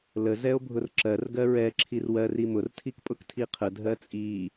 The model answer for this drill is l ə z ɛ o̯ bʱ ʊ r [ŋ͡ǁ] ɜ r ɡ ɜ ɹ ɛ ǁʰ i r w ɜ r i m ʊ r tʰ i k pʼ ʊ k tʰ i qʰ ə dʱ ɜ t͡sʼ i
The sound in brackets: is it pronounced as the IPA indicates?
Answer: no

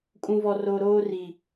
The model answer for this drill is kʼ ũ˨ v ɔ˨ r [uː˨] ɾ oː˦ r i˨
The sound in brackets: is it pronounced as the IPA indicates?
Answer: no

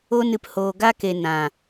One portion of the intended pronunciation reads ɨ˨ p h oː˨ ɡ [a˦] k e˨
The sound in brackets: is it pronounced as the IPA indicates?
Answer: yes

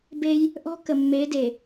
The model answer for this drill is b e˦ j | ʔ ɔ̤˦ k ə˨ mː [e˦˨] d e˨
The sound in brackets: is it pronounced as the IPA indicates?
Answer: no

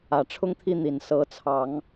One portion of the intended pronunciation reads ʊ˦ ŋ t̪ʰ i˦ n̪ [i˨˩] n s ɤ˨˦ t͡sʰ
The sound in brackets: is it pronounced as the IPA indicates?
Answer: yes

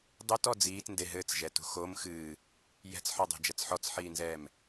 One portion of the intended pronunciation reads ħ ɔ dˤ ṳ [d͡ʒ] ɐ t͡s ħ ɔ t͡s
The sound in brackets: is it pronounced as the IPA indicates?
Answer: yes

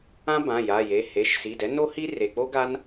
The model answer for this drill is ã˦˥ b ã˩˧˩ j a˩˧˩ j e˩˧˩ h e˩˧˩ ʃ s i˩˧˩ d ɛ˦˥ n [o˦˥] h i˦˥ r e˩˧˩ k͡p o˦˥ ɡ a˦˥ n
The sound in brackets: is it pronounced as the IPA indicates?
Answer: yes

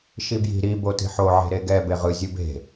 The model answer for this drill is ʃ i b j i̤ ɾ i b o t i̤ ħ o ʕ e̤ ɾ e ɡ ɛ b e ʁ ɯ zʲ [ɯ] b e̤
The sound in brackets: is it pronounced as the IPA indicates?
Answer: yes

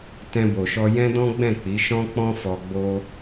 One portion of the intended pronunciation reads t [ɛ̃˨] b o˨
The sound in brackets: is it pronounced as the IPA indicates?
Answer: no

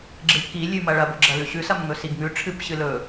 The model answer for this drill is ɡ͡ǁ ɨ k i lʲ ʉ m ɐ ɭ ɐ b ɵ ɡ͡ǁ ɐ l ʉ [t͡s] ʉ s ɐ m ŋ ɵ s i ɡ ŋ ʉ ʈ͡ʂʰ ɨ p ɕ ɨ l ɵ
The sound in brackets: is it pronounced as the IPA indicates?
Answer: no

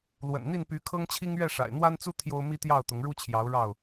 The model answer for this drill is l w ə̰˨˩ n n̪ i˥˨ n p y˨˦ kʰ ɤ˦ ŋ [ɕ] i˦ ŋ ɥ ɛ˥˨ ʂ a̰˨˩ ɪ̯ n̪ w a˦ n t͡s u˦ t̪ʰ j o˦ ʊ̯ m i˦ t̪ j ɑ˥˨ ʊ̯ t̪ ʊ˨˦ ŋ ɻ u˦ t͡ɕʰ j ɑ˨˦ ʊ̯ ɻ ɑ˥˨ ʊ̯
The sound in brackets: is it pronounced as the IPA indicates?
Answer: no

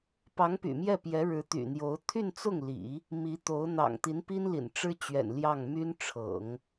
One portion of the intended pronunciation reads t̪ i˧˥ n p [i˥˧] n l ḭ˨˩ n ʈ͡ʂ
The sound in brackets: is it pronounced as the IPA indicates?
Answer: no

